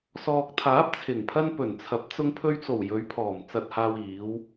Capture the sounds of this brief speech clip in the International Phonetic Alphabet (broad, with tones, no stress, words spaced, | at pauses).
sɔː˨k̚t̪ʰaː˨˥p̚t͡sʰɪ˨˩ŋpʰɐ˧n pɵ˨˩nt͡sʰɐ˨˥p̚ t͡sʊ˧ŋpʰɵ˧ɥt͡so˨˩w jɵ˨˧ɥpʰɔː˨˩m t͡sɐ˨t̚haː˨wiː˨˧w